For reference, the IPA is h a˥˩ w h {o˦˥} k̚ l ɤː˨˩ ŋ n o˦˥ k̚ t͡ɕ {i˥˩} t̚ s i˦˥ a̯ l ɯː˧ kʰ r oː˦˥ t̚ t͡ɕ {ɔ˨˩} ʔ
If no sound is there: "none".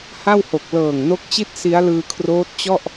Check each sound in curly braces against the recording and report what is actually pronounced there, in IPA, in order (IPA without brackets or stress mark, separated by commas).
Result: o˨˩, i˥˩, ɔ˥˩